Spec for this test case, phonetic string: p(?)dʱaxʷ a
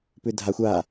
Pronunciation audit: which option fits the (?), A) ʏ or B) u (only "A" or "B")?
A